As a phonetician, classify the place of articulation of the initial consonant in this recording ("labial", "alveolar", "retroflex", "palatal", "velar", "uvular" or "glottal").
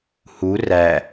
glottal